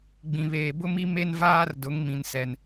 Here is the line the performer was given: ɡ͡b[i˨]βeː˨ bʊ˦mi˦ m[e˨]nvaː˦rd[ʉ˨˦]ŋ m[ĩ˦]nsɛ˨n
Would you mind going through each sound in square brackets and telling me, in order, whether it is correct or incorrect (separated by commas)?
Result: incorrect, incorrect, incorrect, incorrect